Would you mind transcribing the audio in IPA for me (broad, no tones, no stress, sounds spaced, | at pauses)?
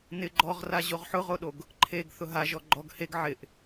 n ɪ ɡ͡ǃ ɔ ʁ r a ʑ o ʁ ħ ʊ ʁ o ɗ o ɡ | ǃʰ e ɡ θ ʊ ɦ a ʒ ɔ ɡ͡ǃ ɔ ɡ h e ɡ ʕ ɪ ʔ